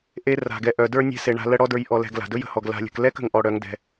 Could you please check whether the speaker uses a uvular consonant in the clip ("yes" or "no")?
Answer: no